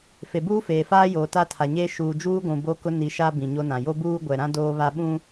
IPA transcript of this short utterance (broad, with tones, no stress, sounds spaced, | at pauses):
f e˨ b uː˦ f eː˨ f aː˦ j oː˨ t a˦ tʰ a˨ ɲ eː˦ ʃ uː˨ d͡ʒ uː˦ ɡʷ ũ˨ b o˦ k ʊ˦ n i˨˦ ʃ a˦ b ĩ˨ ɲ o˦ n ã˨ j o˦ b uː˦ ɡʷ ɛ˨ ɾ ã˦ d oː˦ β a˦ ɓ ũ˦